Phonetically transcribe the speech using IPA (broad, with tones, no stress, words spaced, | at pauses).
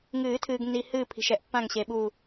ŋɨː˨˩˦tʰɨː˨ɡnːi˨ hɨː˦˨ pʰi̤˨ʃɛ˨ʔpːã˦˨ŋɕe˨ ɓu˦˨